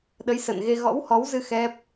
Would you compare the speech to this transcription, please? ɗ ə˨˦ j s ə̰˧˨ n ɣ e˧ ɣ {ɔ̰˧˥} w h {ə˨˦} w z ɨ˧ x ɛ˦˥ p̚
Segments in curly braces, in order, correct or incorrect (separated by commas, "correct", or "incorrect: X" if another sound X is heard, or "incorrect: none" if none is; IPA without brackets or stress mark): correct, incorrect: ɔ˨˦